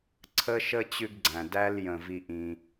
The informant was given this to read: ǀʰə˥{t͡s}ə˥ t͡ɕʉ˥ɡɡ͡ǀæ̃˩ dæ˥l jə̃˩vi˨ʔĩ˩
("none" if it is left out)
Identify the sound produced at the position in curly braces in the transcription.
ʃ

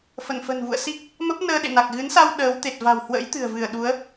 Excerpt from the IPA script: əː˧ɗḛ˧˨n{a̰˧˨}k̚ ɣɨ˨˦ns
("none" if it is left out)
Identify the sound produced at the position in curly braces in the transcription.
a˨˩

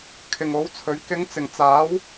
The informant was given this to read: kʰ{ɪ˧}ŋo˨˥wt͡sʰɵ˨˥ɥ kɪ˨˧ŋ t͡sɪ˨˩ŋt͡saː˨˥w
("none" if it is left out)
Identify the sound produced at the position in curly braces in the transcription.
ɪ˨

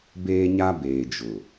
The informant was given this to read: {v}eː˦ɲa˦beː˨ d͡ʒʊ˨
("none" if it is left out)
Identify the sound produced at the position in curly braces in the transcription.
b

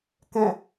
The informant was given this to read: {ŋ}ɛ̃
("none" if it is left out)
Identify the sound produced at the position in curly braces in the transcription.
k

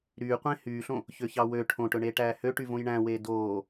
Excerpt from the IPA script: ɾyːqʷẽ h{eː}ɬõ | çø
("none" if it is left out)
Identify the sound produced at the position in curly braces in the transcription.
yː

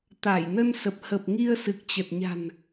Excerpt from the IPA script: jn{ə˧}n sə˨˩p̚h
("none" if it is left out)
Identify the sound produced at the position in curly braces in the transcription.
ə˧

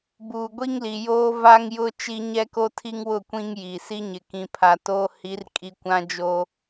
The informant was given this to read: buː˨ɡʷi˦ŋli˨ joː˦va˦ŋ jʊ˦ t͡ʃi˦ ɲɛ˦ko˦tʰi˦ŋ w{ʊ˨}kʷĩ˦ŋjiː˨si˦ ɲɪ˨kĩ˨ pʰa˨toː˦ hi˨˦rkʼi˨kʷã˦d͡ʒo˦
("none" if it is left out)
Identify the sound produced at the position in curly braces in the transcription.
ʊ˦˨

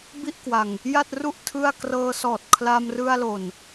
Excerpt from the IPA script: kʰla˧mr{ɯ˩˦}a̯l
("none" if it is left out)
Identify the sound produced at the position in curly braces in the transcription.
ɯ˧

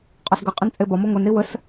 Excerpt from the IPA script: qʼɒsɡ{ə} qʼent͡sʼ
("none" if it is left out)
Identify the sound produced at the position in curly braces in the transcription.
ə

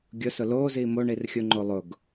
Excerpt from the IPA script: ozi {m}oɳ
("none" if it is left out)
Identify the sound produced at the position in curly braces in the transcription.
m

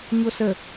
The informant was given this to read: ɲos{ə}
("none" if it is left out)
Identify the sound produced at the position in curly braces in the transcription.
ə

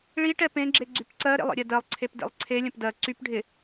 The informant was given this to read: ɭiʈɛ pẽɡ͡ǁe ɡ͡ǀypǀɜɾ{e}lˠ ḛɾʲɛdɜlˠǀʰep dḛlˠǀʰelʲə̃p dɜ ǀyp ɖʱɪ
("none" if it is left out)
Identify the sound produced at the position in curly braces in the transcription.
ḛ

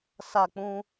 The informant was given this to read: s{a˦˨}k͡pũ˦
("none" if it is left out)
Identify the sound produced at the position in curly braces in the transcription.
a˦˨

